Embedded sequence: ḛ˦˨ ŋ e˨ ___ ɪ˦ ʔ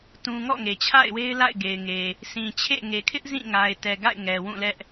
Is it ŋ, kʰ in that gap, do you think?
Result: kʰ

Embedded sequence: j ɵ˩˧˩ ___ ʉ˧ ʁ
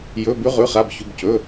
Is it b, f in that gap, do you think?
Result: b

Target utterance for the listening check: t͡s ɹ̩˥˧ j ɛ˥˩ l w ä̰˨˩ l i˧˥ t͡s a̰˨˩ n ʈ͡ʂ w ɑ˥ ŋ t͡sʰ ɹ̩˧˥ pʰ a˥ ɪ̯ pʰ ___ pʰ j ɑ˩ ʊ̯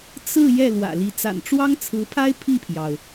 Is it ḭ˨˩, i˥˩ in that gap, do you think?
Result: i˥˩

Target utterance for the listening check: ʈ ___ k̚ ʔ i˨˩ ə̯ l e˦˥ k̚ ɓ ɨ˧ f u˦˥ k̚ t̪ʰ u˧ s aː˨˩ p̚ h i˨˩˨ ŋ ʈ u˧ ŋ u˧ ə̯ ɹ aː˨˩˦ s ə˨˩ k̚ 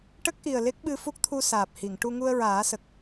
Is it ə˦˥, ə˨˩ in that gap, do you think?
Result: ə˦˥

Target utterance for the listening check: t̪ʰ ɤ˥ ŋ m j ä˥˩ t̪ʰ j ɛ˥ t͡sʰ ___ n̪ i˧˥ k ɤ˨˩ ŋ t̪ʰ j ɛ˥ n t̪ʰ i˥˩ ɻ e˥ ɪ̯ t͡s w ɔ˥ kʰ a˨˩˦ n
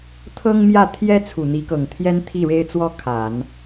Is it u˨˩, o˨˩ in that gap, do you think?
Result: u˨˩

